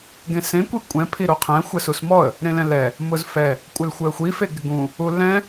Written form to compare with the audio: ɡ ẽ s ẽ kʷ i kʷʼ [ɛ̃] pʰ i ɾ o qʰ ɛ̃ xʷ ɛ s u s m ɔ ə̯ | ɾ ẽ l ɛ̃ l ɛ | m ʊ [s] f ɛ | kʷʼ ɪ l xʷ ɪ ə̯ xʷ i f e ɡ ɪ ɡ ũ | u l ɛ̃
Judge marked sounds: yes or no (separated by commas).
yes, no